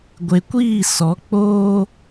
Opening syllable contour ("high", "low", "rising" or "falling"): low